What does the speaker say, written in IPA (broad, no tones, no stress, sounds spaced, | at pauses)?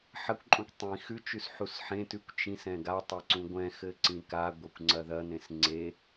ħ ɐ kʷ ǃʼ ũ kʷ tˤ ĩ x ʉ t͡ʃ ʉ s ħ u s ħ ẽ t ʉ kʷ t͡ʃ ĩ s ɛ̃ ɡ a tˤ e ǀ ũ ɡʷ ɛ̃ x ɘ ǀ ĩ k a ɡʷ e kʷ ŋ͡ǀ ɐ ð ɐ n ẽ s ŋ͡ǀ e